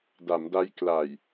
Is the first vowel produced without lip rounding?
yes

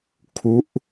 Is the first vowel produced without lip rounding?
no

